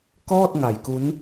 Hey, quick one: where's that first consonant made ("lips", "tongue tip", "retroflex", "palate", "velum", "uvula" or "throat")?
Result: velum